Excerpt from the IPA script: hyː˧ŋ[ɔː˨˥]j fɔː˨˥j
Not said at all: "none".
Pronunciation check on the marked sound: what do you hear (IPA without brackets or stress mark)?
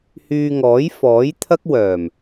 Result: ɔː˨˥